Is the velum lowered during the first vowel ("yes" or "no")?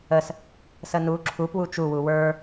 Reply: no